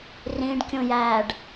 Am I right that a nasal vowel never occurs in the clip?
no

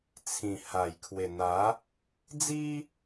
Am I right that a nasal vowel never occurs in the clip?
no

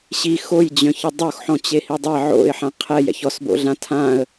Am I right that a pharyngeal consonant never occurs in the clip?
no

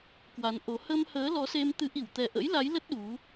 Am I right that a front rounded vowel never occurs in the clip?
yes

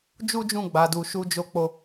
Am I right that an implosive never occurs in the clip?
yes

